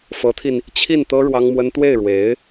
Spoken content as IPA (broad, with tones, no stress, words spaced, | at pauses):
fɤ˧˥t̪ʰi˧n | t͡ɕʰi˥˩nt̪ɤ˥ ɻwɑ˥ŋmwə˥n t̪we˥˩ɪ̯ɻwe˧˥ɪ̯